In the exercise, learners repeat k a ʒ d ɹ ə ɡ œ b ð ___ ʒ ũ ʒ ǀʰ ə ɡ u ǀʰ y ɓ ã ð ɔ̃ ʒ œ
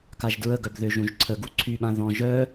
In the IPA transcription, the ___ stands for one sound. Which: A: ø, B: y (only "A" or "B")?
A